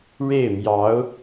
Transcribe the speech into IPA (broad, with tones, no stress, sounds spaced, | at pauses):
ɻ e˥˩ ɪ̯ m j ɑ˧˥ ʊ̯